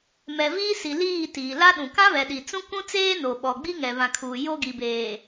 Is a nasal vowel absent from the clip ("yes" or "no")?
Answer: no